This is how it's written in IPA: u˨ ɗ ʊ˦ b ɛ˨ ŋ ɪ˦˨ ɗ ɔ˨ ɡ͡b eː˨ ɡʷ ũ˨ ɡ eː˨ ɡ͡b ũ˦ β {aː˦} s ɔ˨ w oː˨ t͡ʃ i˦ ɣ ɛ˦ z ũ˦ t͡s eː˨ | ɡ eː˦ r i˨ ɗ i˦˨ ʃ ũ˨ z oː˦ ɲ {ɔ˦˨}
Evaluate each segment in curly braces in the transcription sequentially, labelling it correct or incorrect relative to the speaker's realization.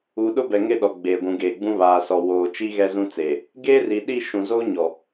incorrect: aː˨, incorrect: ɔ˨

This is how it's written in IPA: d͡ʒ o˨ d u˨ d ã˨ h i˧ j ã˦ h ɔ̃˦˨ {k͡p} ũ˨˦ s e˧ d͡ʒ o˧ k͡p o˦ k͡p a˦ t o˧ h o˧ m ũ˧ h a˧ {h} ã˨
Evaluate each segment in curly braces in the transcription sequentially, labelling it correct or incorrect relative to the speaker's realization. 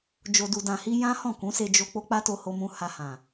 incorrect: k, correct

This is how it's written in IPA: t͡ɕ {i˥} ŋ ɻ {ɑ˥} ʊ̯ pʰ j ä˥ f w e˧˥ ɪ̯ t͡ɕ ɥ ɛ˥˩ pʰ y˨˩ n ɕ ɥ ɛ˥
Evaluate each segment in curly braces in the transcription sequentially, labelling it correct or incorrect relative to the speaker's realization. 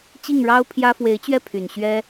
incorrect: i˥˩, correct

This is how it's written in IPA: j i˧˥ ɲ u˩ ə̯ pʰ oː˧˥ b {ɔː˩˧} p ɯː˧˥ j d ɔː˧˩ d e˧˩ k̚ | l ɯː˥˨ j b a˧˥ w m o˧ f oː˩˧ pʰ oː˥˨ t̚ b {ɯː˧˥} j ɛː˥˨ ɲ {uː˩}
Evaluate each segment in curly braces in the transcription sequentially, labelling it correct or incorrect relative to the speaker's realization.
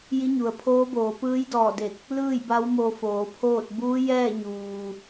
incorrect: oː˩˧, incorrect: uː˧˥, correct

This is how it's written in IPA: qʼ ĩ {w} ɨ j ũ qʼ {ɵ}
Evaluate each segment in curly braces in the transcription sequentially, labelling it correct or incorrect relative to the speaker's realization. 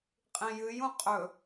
incorrect: j, correct

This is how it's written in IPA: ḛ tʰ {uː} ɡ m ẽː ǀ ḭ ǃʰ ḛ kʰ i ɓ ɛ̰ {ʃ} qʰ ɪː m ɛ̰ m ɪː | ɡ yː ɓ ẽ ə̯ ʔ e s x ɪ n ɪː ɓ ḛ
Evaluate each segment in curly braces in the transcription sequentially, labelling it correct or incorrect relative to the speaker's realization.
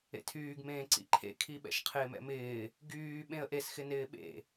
incorrect: yː, correct

